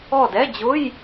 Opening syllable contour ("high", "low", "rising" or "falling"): falling